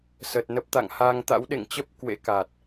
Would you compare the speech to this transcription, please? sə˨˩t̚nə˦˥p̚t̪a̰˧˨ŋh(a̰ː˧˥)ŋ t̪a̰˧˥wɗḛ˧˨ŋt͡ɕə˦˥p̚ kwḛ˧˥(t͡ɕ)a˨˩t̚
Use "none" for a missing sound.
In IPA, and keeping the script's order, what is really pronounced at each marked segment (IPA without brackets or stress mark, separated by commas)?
aː˧, k